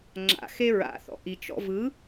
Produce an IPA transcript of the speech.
ŋ͡ǁ a̰ x e ɹ a̰ θ ɔ̰ ʔ i t͡ʃ ɔ̰ v ɯ

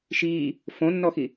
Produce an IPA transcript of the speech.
ʃ iː | f õ nː ɔ x i

